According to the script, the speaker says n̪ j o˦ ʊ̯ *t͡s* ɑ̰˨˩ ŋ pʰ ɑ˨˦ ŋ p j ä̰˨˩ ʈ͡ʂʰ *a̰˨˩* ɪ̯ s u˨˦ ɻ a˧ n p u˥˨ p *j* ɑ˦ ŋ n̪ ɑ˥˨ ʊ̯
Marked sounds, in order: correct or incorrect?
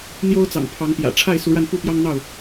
correct, incorrect, correct

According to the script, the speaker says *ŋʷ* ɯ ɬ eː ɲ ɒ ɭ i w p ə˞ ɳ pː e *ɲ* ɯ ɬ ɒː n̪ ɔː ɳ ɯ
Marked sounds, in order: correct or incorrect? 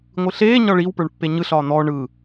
correct, correct

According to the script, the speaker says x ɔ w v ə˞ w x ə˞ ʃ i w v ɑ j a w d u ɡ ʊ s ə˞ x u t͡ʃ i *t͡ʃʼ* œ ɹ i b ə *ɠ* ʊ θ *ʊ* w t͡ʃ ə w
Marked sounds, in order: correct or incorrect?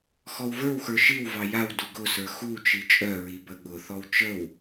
correct, correct, incorrect

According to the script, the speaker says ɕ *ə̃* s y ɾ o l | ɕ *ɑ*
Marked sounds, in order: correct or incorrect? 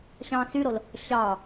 incorrect, correct

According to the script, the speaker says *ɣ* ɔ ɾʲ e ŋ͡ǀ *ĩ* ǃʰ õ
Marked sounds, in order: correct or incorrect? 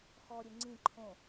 incorrect, correct

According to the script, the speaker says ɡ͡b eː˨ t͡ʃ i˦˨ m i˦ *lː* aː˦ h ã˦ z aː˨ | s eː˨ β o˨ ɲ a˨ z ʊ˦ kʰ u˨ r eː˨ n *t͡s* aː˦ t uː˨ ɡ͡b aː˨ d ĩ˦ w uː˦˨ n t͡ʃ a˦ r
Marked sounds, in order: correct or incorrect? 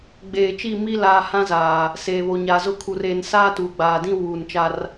incorrect, incorrect

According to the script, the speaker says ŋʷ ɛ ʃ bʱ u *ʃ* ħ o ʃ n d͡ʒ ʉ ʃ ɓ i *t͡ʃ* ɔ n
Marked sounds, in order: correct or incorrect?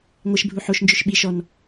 incorrect, incorrect

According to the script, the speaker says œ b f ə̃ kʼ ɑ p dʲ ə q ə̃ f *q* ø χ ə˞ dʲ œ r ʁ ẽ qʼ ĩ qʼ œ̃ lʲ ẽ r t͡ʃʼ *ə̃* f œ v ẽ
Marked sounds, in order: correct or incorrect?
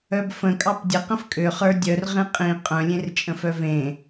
incorrect, correct

